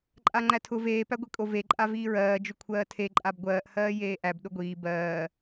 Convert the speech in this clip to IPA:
ǃʼ a ŋ͡ǃ æ tʰ ʊ v eː p æ ɡʷ e kʼ o v e ǃʼ a v iː ɹ ɜː d͡ʒ ʊ kʷʰ ɜː tʰ e ǃʼ a b ɡʷ ɜː ʔ h ɜː j eː ʔ æ b ɗ ʊ ɡʷ iː b ɜː

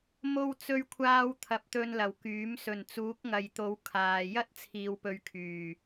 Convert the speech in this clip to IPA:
m o˥ w t͡s ɵ˧ ɥ kʷʰ aː˧ w t̪ʰ ɐ˨ p̚ t̪ ɵ˧ n l ɐ˨˩ w k yː˨˥ m s ɵ˨˩ n t͡s uː˨˥ k̚ ŋ ɐ˨ j t̪ o˨˧ w kʰ aː˨ j ɐ˥ t̚ t͡sʰ iː˨ w p ɵ˨˧ ɥ kʰ yː˨˩

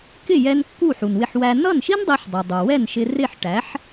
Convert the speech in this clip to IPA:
k ɪ˥˩ j ɛ˧ n kː u˥˩ ħ u˩ n w ɪ˧ ħ w æ˧ n ʌ˥˩ n ʃ i˥ n dˤ i˧ ħ dˤ i˩ dˤ u˩ w ɛ˥˩ n ʃ ɪ˧ r ɪ˥˩ ħ ʈ æ˩˥ ħ

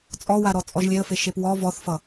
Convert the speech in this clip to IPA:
t͡sʼ ɔ w a ɾ ɔ t͡sʼ ɔ ʒ lʲ e ə̯ f e ʃ e p w ɔ v ɔ θ f ʌ

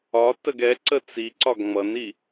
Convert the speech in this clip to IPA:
ɒ t ə ɡ ɛ ǀ ə t͡s i ǀ ɒ ɡ ŋ͡m ʌ n i

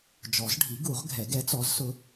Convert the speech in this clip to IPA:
d͡ʒ ɔ˨˩˦ z ɖʱ i˨˥ ɡ u˨˩˦ ʁ ɡʱ ɛ˨˩˦ ɡ ɛ˨˥ t͡s ɔ˨˥ z s ʊ˧

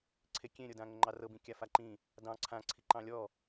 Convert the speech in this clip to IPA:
ǀʰ e kʲ ẽ ɾʲ ɤ d ã ŋ ə ŋ͡ǃ ɑ r ɤ b ĩ kʲ a f a ǃ ĩ | d ɑ̃ ǀʰ ã ǀʰ i ǃ ɑ̃ lʲ ɔ

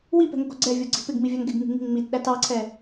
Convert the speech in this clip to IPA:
w i p ɛ̤ ŋ ʊ ɡ ɔ ɡ͡ǀ ɛ vʲ ɔ ɡ͡ǀ i̤ p ɪ ɡ m i vʲ ɑ ŋ ɡ ɪ ɡ ŋ i̤ ŋ i̤ ŋ ŋ͡m i t ɗ æ t ɑ ǀʰ ɛ

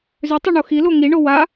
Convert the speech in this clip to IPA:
z ʏ tˤ o ɳ o x i l o ŋ i ɳ o w a

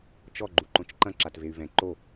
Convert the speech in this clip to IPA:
t͡ʃ ɔ ɡ͡ǃ u ǃ õ t͡ʃ ǃ ɐ̃ ǁ a t v e y̯ v ɛ̃ ǃ o

